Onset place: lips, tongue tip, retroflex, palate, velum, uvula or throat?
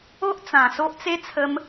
throat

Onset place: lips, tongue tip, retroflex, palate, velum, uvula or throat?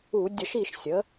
tongue tip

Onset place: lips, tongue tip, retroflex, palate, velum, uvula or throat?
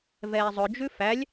lips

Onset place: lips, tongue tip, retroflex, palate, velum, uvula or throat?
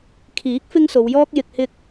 velum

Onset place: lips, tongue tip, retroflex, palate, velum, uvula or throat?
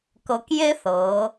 velum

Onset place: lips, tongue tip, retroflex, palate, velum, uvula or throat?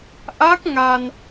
throat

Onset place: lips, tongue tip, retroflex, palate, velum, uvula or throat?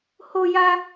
throat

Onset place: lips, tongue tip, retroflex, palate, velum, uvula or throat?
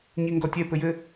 palate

